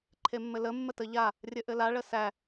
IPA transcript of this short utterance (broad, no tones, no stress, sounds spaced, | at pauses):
ǃʰ e mː ɘ l ə mː ə t ə ʎ a | rʲ ɘ ʔ ɘ l a ɭ ə s æ